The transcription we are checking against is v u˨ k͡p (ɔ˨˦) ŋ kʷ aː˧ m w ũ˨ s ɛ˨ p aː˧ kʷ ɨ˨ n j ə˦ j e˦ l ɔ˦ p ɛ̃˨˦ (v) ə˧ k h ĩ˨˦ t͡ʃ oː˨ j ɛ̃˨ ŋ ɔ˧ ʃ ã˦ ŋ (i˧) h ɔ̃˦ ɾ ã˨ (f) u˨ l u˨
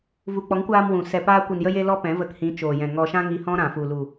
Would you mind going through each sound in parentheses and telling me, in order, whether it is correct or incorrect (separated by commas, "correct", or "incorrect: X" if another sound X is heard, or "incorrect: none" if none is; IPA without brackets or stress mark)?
correct, correct, correct, correct